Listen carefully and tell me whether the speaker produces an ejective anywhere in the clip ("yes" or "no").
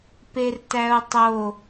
no